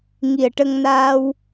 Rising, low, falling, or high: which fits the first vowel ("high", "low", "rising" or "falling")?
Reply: low